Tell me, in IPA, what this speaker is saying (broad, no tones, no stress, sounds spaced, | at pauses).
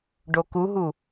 ɖ o k u ɦ u